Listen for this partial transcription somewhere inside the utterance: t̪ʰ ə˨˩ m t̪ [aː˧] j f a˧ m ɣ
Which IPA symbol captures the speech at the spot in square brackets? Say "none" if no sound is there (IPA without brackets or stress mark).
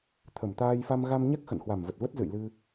aː˧